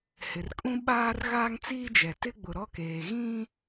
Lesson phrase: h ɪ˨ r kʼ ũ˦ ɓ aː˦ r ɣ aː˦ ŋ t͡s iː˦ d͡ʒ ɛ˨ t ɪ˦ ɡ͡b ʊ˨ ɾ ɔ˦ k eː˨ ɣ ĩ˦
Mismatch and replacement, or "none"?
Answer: none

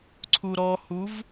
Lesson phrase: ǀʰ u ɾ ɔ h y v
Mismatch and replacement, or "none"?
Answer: y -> u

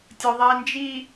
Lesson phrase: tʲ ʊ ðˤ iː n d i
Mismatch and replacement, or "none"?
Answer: d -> d͡ʒ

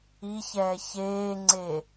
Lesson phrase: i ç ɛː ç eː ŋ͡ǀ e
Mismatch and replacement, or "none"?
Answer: none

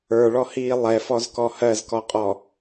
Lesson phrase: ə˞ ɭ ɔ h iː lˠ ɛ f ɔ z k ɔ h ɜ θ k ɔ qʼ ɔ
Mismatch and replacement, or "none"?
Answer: θ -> z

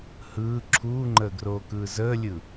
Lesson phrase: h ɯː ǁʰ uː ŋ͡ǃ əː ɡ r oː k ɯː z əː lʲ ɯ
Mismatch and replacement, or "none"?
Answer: none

